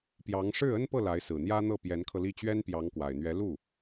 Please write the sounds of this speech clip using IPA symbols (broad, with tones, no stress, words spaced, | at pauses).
pjɑ˧˥ŋ ʂɻ̩˥˩ə˥npɤ˥˩ la˧˥ɪ̯sɹ̩˨˩n̪jä˥n̪ɤ˥˩ pjɛ˧˥nkʰɤ˧li˥˩ t͡ɕɥɛ˥npjɑ˧˥ŋkwa˨˩ɪ̯ n̪ɥɛ˧˥lu˥˩